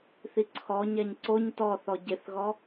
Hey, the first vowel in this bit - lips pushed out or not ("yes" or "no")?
no